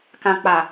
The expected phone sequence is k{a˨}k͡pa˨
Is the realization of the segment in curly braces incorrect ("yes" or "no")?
yes